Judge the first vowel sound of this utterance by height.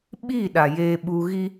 high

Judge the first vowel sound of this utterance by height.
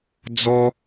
mid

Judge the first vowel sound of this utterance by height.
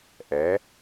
mid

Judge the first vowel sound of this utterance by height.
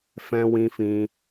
mid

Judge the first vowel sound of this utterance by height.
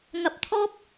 low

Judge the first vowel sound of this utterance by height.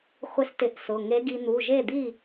high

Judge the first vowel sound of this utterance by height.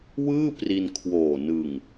high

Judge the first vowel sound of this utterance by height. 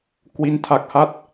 high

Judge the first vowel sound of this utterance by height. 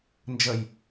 mid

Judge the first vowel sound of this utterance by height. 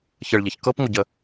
mid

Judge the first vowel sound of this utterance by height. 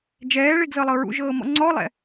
mid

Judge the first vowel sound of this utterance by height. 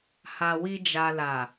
low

